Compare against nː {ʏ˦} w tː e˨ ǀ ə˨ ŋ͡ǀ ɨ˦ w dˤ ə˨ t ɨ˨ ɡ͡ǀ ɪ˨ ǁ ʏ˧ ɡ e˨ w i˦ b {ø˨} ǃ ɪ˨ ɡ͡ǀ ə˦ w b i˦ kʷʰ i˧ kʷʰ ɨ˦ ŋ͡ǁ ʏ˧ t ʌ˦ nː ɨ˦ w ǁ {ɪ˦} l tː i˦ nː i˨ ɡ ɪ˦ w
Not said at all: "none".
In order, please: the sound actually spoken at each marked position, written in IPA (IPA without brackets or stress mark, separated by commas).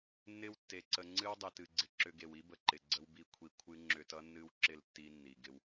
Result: ɪ˦, ə˨, ɪ˦˨